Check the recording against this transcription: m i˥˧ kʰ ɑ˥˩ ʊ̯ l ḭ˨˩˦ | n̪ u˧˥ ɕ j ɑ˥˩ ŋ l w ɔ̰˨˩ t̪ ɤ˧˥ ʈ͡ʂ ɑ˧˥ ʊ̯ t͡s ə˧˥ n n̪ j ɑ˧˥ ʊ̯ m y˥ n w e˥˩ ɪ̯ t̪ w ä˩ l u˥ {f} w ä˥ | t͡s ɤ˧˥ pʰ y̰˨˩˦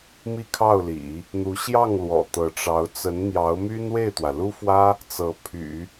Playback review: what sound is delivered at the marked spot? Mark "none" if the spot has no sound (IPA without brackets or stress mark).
f